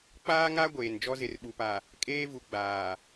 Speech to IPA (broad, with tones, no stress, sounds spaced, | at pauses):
k͡p aː˦ ŋ a˦ ɡʷ eː˨ n d͡ʒ ɔ˦ z ɪ˨ r ɓ u˨ p a˨ | kʼ eː˦ v u˨ ɡ͡b aː˨